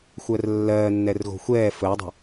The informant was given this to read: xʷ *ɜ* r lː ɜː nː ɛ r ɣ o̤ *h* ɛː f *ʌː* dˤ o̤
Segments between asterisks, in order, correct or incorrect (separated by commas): correct, incorrect, incorrect